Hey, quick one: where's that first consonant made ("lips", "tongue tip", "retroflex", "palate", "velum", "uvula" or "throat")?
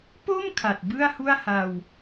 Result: lips